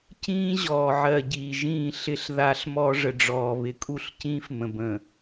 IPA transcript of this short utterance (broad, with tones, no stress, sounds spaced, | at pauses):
c ĩː˦ ʑ ɔː˨ ʕ ɜ˨ ɟ iː˨ ʒ ĩː˦˨ ɬ ɪ˦ ɬ ð a˦ ɬ m ɔ˦ ʐ ə˨ ɖ͡ʐ ɔː˨ β ɪ˨˦ kʼ u˦ ɬ c ĩː˦ f m ə̃˨ b ə̃˨